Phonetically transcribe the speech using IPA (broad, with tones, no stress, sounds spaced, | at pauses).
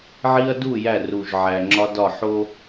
ʕ i˦ ɐ̯ d u˦˨ j æ˦˨ r u˨ ʒ ʕ æ˨ ŋ͡ǁ ɒ˦ d ɒ˦˨ ħ o˦